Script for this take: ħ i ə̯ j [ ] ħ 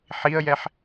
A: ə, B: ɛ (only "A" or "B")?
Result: B